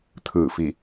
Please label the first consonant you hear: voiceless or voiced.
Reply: voiceless